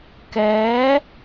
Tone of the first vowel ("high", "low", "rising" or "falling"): rising